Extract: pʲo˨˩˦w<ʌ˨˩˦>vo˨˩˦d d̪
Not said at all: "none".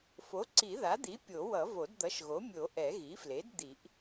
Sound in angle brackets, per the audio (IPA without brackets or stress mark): ʌ˨˩˦